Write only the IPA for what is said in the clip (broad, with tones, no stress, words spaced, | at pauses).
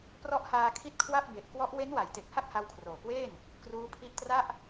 prɔ˦˥ʔhaː˧kʰi˦˥t̚ kʰwa˥˩p̚ be˨˩ʔkwɔ˦˥ʔ we˦˥nwa˩˦jte˨˩k̚ ha˥˩k̚ha˧wkʰroː˨˩kweː˥˩n | kruː˦˥pʰi˦˥ʔtra˥˩ʔ